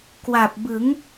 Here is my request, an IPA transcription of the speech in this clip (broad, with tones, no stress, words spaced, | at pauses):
kwa˨˩p̚ bɯ˩˦ŋ